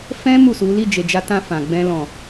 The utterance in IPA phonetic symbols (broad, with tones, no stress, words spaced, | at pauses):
fɛ̃˦ mu˦˨su˨˦ li˦˨d͡ʒe˨d͡ʒa˧ tã˧ fã˨ɡ͡bɛ̃˧ lɔ̃˨